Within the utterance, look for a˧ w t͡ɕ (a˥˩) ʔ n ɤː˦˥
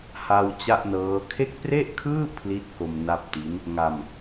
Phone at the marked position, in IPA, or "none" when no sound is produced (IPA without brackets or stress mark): a˥˩